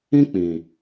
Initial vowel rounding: unrounded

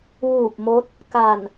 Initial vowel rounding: rounded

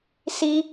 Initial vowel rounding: unrounded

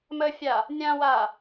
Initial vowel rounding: unrounded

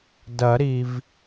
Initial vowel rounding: unrounded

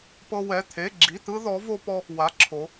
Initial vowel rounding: unrounded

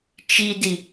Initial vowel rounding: unrounded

